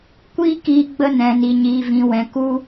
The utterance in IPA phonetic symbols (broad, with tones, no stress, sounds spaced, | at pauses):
kʷ iː˦ k iː˦ ɡ͡b ə˦ n ɛ̃˨ n i˨ ɲ iː˨ v ĩ˨ w ɛ̃˨ k u˦